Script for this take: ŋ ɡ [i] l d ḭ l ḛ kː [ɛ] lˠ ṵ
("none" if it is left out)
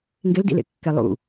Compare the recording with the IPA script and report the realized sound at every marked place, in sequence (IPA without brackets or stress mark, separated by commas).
e, ɛ